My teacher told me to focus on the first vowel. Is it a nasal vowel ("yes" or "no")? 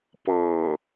no